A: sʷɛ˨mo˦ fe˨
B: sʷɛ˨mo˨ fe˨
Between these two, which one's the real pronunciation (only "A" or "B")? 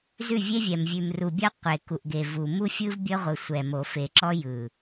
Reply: B